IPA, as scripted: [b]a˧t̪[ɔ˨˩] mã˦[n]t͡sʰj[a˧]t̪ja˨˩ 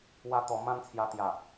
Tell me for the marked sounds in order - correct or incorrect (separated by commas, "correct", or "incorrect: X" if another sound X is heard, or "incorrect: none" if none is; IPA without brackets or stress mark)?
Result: incorrect: w, correct, correct, correct